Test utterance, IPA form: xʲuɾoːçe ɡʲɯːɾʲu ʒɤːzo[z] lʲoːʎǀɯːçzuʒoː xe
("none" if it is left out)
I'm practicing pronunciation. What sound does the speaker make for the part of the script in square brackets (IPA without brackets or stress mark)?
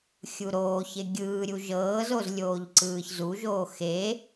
z